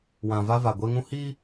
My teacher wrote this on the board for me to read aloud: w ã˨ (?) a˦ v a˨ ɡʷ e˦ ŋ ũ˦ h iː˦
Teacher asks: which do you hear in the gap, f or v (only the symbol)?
v